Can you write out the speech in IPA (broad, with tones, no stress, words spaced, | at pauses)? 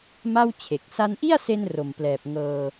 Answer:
ma˥˩w t͡ɕʰe˨˩k̚ sa˧nʔi˥˩a̯se˧n ro˨˩mplɛː˨˩p̚ ŋɤː˧